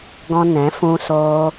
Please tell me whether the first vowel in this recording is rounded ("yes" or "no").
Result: yes